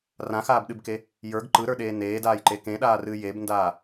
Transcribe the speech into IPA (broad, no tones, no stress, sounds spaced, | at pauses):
r ã x aː b ɗ ɨ b k e | j ə˞ ɡ ǃ ɯ ɾ ə˞ ɗ eː n eː d aː j ǃ e k ẽ ɗ aː r ɨː j e b n d aː